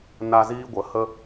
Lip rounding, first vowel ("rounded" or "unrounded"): unrounded